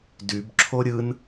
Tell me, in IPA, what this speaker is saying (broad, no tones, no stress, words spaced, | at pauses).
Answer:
dybǁʰo ɾʲɯn